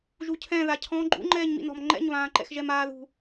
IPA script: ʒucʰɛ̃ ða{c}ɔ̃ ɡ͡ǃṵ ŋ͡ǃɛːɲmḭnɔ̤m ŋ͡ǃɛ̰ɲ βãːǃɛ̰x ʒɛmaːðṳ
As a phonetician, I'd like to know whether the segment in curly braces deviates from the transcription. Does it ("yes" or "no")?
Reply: yes